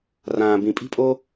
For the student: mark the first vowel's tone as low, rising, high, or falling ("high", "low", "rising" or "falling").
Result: low